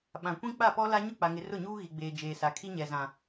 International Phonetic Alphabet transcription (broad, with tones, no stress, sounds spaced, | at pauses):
ɓ ã˨ kʷ ĩ˦ k͡p a˦˨ p ɔ˦ l a˦ ɲ ʊ˦˨ k͡p a˨ ŋ ɪ˨ r ʊ˦˨ ɲ uː˦ ɣ i˨ ɡ͡b eː˨ d͡ʒ eː˨ s a˨˦ kʰ i˦ ɲ ɛ˨ z ã˨